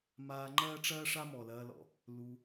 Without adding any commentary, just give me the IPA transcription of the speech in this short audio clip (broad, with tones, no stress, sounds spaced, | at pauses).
m aː˧ ŋ͡ǃ ɐː˦ ʈ͡ʂ ɐː˦ ʂ a˦ m ɔ˨ l ɐː˧ l ɔ̰˨ | l u˧